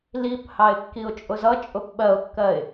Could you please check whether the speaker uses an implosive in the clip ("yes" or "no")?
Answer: yes